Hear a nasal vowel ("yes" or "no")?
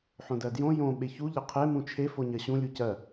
yes